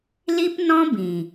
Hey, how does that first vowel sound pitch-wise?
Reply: high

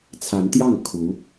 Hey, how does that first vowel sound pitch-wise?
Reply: rising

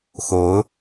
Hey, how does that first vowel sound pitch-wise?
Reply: rising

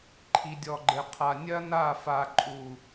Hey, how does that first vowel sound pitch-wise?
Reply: low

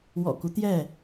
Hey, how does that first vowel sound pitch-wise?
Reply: low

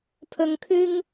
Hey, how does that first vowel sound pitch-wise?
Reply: low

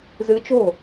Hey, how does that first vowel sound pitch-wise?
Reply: rising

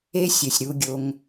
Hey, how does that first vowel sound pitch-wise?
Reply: high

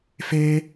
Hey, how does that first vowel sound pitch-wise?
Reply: high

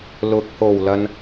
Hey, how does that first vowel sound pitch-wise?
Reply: rising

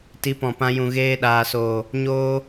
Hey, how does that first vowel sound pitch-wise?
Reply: rising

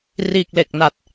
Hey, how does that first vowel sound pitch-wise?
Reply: low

